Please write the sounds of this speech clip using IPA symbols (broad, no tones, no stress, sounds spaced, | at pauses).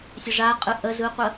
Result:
sʲ ə ʐ a qʼ ɯ ʔ ə z ɯ qʷ ə